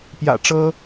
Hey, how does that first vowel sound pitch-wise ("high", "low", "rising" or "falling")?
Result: low